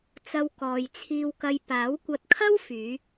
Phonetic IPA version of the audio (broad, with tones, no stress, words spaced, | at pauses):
t͡sɐ˧wkɔː˨jt͡sʰiː˧wkɐ˧j paː˨˥wkʷɐ˧t̚kʰɐ˥wfyː˨˧